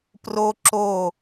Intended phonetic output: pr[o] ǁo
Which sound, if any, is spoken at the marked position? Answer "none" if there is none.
o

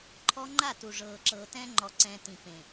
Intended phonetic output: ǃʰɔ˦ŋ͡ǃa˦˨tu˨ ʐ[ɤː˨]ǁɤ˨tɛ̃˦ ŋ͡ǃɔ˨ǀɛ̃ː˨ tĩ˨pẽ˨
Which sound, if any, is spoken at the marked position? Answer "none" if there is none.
ɤː˨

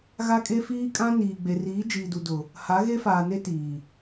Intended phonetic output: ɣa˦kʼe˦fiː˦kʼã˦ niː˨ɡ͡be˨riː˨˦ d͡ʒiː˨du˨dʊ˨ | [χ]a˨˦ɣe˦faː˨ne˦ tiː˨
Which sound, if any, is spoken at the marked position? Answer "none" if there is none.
h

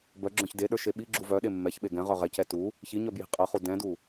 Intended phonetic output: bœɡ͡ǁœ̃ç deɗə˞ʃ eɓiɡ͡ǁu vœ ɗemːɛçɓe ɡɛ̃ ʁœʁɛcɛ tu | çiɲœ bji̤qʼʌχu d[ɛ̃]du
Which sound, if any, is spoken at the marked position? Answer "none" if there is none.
ɛ̃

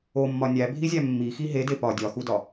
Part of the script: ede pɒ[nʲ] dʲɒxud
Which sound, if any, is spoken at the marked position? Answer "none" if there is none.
none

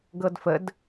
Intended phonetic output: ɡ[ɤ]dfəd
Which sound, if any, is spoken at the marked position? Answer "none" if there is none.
ɤ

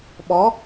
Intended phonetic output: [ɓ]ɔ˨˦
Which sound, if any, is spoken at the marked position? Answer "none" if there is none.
ɓ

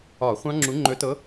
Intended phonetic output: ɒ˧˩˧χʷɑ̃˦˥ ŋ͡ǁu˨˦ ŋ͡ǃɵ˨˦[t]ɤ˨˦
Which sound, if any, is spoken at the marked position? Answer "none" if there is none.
t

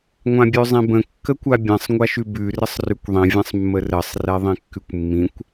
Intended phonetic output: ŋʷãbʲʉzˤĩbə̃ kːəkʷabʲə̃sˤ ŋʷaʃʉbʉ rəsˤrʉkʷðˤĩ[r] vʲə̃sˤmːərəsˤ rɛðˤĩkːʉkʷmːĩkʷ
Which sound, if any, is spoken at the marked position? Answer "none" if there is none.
none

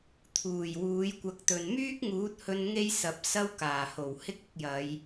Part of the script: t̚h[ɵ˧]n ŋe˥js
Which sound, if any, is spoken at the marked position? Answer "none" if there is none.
ɵ˧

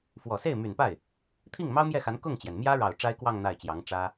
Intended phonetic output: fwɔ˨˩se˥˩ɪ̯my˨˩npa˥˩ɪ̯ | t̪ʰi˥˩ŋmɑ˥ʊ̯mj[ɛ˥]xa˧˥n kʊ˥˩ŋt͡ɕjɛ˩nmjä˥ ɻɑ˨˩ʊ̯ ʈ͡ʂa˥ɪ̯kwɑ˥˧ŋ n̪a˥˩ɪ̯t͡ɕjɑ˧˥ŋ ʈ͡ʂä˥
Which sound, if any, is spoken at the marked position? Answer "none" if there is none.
ɛ˥˩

